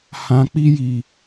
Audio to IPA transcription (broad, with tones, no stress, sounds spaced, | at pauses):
h ã˨ k͡p i˧ j i˨